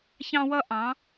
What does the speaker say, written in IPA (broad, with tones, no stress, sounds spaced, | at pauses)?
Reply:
ç ɑ̃˥ w ʌ˥ ʔ ɑ̃˧˥